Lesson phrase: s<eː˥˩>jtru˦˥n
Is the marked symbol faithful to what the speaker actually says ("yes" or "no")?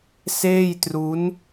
yes